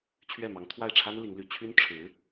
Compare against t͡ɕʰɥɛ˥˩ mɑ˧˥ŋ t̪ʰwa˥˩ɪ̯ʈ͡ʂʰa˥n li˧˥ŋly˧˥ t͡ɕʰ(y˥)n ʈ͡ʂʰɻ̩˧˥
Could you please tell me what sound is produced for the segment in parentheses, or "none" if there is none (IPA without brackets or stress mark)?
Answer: y˥